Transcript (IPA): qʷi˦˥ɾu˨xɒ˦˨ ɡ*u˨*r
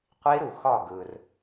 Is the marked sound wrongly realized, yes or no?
yes